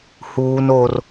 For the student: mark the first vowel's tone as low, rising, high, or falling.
high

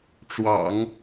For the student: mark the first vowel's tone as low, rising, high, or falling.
low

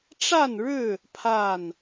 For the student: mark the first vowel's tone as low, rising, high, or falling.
falling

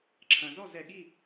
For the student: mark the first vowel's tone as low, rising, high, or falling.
low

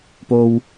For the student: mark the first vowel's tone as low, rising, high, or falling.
low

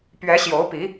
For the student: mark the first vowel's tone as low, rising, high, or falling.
rising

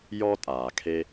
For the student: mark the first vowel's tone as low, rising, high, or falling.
high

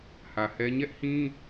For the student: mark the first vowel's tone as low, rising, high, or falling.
low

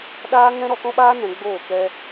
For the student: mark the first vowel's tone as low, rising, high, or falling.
high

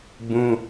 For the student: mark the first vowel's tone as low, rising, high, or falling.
high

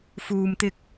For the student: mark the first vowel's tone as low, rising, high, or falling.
low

